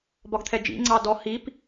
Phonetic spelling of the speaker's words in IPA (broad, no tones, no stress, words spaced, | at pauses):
bɒɡt̪ʰɛd͡ʒḭ ŋ͡ǀɑdɔ hip